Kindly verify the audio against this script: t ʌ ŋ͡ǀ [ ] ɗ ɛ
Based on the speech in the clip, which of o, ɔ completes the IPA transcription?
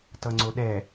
o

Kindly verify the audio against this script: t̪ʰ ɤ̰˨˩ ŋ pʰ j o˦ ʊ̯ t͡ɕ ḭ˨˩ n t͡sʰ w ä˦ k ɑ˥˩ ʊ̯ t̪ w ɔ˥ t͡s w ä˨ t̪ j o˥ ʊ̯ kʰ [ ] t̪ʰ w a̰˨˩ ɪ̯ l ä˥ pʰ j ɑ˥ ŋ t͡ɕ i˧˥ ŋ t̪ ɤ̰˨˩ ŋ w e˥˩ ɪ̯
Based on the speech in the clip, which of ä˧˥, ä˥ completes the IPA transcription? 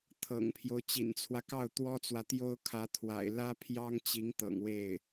ä˧˥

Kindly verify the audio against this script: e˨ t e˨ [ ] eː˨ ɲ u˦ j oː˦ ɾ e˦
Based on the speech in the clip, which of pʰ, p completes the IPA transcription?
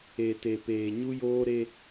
p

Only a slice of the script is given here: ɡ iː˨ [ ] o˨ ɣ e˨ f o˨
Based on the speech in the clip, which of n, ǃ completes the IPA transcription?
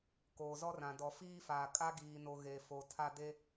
n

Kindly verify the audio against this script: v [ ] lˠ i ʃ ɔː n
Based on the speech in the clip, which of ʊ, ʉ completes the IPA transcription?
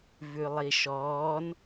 ʉ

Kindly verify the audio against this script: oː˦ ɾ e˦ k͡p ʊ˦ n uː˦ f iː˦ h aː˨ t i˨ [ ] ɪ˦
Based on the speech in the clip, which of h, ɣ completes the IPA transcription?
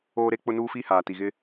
ɣ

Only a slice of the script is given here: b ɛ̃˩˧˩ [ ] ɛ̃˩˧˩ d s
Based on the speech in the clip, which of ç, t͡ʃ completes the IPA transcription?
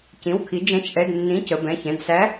ç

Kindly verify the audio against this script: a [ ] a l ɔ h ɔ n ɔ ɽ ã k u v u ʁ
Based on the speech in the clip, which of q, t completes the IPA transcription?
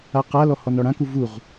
q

